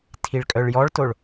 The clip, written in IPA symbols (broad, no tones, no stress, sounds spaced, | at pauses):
tʰ i ɭ kʼ œ ɭ j ɔ ɭ t o ɭ